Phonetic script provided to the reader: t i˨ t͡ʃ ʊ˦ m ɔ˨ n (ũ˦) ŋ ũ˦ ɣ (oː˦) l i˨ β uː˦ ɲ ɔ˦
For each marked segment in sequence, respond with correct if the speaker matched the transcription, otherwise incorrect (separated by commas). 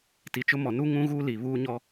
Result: incorrect, incorrect